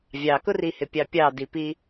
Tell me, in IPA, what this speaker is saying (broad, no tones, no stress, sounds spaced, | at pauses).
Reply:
vʲ ɑ k ʊ r i h ɪ pʲ ɑ pʲ ɑ d i p i